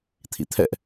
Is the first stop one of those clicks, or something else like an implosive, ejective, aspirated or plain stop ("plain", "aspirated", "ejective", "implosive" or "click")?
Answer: aspirated